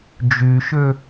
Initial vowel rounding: rounded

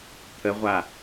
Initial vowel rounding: unrounded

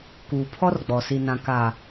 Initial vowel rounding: rounded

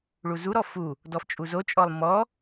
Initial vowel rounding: rounded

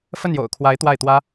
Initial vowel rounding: unrounded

